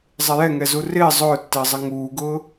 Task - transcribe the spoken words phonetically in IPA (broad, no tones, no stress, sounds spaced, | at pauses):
zˤ ɪ j ɛ ŋ ɛ z u r ɪː zˤ ʊː tː ɪː zˤ ɪ ŋ uː ɡ ʊː